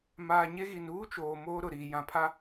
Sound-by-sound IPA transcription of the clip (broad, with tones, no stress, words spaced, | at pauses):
maː˨ɲe˦ ɣi˨n uː˦t͡ʃoː˨ moː˦ɾʊ˨ɾiː˨ jã˨pʰa˦